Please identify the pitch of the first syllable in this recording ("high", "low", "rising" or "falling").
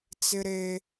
high